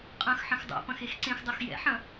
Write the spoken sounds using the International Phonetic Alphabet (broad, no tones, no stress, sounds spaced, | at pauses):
qʼ ɐ̃ x ħ ɐ̃ x dˤ o̰ p ɐ̃ x e x ǀ ẽ x dˤ o x j ɛ̰ ħ ɐ̃